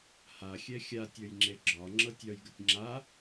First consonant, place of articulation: glottal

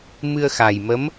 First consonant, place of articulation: labial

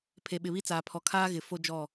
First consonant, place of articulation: labial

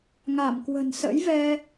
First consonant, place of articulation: velar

